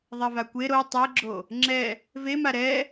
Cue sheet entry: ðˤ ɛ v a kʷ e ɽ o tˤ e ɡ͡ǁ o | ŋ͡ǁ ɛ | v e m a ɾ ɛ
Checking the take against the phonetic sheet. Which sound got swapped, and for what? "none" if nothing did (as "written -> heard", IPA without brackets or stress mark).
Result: ɽ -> ɾ